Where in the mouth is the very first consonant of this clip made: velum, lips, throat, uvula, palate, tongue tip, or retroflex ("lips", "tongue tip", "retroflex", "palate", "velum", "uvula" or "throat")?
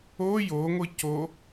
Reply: palate